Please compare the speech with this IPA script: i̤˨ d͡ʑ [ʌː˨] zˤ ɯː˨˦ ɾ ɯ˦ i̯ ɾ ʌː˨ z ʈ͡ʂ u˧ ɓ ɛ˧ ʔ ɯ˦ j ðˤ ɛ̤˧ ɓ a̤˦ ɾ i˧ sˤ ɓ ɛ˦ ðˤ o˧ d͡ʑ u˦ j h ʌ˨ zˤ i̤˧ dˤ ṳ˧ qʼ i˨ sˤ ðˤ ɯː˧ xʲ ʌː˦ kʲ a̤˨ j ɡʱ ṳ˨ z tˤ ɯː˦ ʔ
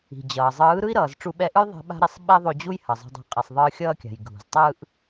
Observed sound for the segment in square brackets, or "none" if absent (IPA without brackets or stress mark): ʌː˨